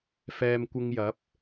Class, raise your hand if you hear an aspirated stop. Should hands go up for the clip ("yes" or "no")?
no